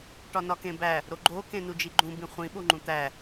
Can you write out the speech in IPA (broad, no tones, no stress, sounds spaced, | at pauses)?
ʈ ɒ n ɒ k ẽ b æ | ɾ o ɡ͡ǃ o k ẽ n u d͡ʒ i ɡ͡ǃ ũ b ĩ χʷ ĩ ɓ o ŋ͡ǃ ũ t̪ æ